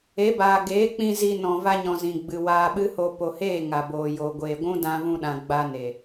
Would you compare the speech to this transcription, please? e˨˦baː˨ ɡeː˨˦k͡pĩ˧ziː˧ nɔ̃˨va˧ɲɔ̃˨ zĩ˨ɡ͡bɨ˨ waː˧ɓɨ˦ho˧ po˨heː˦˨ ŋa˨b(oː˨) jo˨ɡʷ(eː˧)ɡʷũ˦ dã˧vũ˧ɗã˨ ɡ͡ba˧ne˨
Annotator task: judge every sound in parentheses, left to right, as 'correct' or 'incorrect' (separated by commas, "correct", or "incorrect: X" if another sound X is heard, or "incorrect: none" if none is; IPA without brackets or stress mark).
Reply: correct, incorrect: eː˨